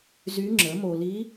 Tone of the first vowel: rising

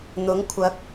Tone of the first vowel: rising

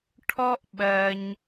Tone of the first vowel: high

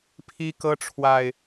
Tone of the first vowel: high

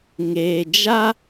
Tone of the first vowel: low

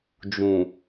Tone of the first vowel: low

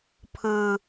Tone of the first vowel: low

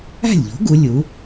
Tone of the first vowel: falling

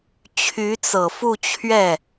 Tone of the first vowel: rising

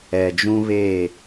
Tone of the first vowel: low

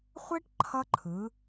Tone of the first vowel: high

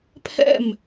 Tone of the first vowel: falling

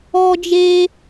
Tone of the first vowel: high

